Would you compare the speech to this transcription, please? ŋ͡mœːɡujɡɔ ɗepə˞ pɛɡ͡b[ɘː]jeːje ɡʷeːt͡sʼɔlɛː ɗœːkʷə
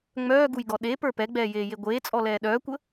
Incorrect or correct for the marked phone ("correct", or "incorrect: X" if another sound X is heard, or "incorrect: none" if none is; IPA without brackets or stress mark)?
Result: incorrect: ɛː